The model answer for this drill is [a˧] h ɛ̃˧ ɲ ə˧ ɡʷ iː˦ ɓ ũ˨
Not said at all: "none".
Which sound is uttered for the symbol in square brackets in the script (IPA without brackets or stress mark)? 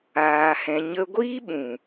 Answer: aː˧